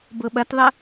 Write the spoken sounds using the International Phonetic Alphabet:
bɤɓɐtðˤə

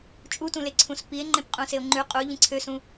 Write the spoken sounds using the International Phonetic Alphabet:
t͡ʃʼutũleǀʰũs pie̯ ŋ͡ǃẽpqʼũseo̯ŋ͡ǃʉ qʼu ʎĩǀʰøsũ

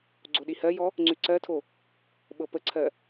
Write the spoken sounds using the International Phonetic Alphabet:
ɡ͡ǀoɗihɜjɔ | ŋ͡ǀʉǀɜtʰo | ɓɤpəǀʰɜ

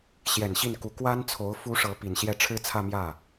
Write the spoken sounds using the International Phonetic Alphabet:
ɕjɛ˨˩n ɕi˥˩nku˧˥ kwa˥nt͡sʰo˧˥ʊ̯ fu˧˥ ʂɤ˧˥pi˨˩nɕjɛ˥˩ ʈ͡ʂʰɻ̩˥t͡sʰä˥˧mjä˥˩

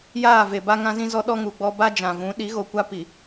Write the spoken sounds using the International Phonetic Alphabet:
jaː˦˨ve˨ ba˦ŋã˦zĩ˦zɔ˦ ɗɔ˦ŋuː˨ɡ͡bɔ˦ ba˦d͡ʒã˨ vũ˨˦ ɗi˨˦ɣo˨kʷa˦ pi˨

